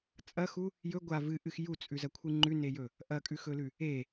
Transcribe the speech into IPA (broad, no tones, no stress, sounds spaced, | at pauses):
t͡sʼ ɐ x u | j ɵ ɡʷ a v ɨ ʔ ɨ x j u t͡sʼ ʉ z ɐ kʷʰ ɨ ŋ͡ǃ ʉ n e j ɵ | ʔ ɐ kʼ ʉ x ɵ l ʉ | e